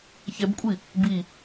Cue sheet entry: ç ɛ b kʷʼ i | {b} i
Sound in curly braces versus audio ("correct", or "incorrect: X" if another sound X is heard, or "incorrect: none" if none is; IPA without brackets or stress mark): correct